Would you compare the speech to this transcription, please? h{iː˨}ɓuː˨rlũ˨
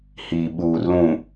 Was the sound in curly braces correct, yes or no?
yes